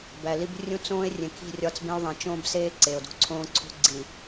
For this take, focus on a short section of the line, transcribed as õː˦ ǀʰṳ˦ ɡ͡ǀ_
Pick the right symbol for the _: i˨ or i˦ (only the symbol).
i˨